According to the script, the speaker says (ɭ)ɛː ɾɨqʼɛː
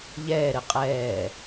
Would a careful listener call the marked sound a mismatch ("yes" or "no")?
yes